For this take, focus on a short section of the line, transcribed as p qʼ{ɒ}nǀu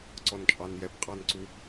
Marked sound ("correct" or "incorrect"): incorrect